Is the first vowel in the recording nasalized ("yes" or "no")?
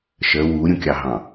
no